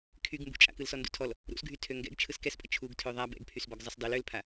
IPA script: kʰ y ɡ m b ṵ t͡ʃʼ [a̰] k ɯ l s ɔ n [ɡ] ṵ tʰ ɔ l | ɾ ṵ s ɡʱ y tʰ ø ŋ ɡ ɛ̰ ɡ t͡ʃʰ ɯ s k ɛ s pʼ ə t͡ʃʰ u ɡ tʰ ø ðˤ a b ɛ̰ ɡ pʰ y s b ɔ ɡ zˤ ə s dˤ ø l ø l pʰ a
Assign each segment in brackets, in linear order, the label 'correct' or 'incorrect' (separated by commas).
correct, incorrect